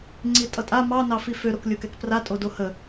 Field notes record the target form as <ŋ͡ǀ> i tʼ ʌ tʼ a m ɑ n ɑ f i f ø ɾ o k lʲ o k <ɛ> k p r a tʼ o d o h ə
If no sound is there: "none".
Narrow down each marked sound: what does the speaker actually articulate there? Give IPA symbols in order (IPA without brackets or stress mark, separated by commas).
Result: ŋ͡ǀ, ɛ